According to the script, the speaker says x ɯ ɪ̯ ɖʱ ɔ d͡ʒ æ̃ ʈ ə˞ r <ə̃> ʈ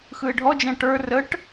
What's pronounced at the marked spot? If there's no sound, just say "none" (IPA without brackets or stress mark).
ə